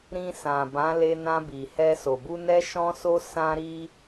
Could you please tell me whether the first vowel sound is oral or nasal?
nasal